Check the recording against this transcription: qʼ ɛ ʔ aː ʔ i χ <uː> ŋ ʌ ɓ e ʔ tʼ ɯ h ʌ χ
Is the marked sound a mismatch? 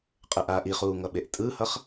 no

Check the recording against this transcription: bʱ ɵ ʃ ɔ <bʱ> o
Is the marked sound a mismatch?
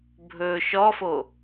yes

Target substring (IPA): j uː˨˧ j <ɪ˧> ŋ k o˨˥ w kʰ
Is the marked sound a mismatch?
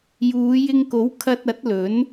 no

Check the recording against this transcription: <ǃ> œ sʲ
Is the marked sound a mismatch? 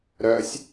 yes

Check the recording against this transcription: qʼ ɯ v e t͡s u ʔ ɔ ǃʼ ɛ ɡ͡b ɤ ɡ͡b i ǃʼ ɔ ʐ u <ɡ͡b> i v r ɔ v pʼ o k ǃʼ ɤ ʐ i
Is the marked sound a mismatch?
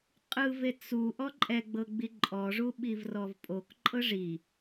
yes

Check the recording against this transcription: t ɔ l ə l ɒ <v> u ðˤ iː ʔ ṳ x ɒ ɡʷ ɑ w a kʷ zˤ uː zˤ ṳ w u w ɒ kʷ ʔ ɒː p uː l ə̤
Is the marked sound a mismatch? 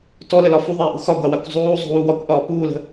yes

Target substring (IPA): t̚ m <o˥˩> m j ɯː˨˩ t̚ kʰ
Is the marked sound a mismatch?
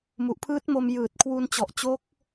yes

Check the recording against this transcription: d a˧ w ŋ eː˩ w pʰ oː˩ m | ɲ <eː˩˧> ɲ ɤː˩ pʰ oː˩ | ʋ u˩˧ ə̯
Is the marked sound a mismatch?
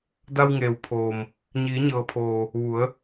yes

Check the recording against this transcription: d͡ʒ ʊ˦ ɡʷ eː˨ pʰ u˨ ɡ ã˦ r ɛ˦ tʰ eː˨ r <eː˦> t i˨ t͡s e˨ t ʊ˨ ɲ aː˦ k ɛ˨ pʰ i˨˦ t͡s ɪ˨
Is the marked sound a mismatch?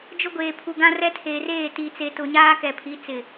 yes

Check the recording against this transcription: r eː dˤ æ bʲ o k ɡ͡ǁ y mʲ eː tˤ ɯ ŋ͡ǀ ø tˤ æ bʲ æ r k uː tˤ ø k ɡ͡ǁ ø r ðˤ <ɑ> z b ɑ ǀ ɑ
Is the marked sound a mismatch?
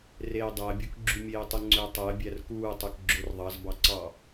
no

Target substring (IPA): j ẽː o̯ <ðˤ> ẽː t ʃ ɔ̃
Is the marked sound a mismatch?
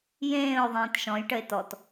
no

